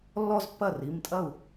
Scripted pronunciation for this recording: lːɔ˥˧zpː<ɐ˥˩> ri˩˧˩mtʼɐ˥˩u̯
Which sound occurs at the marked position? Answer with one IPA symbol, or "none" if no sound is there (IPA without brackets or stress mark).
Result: ɐ˥˩